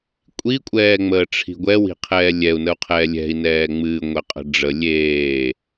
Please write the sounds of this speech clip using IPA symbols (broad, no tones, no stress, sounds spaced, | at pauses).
kʷʼ i kʷʼ ɛː ŋ͡m əː ʈ͡ʂʰ i̤ ɡʷ ɛ w i̤ qʰ ɛː lʲ ɛ u̯ n ə u̯ qʰ ɛː lʲ ɛ̤ i̯ n ɛː ŋ͡m ɨː ŋʷ ɛ qʼ ə̤ ɖ͡ʐ ə lʲ eː